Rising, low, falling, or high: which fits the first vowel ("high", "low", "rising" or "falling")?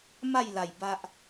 falling